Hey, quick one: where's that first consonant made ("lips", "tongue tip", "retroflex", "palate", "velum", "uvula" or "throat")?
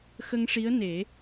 velum